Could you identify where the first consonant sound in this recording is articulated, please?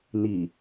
alveolar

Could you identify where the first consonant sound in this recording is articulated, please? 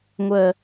velar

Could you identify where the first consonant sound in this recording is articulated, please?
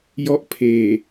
palatal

